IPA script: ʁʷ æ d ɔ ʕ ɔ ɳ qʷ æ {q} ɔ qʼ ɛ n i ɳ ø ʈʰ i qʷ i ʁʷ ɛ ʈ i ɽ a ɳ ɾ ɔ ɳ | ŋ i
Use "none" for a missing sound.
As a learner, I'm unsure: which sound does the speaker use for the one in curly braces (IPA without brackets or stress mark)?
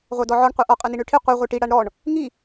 ʔ